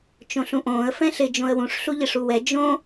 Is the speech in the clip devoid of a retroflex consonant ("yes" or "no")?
no